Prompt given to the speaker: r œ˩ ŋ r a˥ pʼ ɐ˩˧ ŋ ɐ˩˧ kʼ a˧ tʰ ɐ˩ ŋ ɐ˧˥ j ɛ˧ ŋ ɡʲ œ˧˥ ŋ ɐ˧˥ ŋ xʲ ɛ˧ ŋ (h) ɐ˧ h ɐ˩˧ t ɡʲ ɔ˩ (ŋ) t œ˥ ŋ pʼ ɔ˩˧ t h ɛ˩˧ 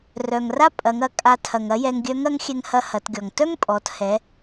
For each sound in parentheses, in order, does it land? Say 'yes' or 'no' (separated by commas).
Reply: yes, yes